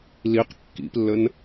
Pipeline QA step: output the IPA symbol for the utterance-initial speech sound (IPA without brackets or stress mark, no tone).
l